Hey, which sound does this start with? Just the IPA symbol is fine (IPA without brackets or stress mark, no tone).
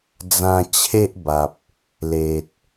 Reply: d͡z